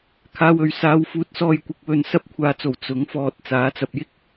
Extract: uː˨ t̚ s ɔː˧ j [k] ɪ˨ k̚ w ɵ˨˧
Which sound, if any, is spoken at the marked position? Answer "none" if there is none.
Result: kʷ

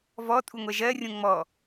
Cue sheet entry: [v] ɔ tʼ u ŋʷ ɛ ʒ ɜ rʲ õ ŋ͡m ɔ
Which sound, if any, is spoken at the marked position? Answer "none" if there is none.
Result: v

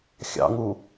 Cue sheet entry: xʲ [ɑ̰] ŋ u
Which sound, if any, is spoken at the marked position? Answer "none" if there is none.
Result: ɑ̰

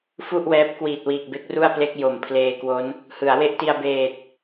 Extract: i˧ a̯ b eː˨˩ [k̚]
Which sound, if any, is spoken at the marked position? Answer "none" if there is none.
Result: t̚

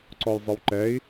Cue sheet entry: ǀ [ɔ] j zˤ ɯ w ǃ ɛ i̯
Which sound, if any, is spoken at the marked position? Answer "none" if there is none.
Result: ɔ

